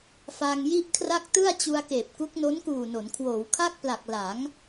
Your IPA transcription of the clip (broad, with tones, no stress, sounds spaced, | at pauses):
f a˧ ŋ j i˥˩ ʔ kʰ r a˥˩ k̚ t ɯ˥˩ a̯ t͡ɕ u˧ a̯ k eː˨˩ p̚ k u˦˥ k̚ n o˦˥ n k uː˨˩ n o˩˦ n kʰ w oː˩˦ w kʰ a˥˩ k̚ p l a˨˩ k̚ l a˩˦ ŋ